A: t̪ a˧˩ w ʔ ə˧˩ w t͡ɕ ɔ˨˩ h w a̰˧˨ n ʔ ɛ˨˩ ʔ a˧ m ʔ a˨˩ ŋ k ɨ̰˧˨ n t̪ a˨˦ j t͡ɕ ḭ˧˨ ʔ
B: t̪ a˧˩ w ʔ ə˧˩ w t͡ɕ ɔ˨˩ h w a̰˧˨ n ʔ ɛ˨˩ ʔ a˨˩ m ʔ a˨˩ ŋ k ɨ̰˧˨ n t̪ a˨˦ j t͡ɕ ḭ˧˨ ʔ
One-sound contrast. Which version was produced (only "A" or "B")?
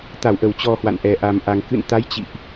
B